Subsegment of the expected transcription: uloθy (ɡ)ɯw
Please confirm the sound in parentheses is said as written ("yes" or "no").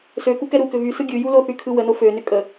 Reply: no